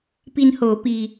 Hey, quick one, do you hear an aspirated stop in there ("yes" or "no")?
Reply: no